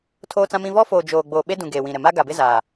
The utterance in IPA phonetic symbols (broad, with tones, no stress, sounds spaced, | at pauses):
tʰ oː˦ t͡s ã˦ m ĩ˦ v ɔ˦ f oː˨ d͡ʒ oː˨ ɡ͡b oː˨ ɓ e˦ d ũ˨ ɡ eː˨ w ĩ˨ ɾ ɛ˨ m a˦ ɡ a˨ b ɪ˦ z aː˨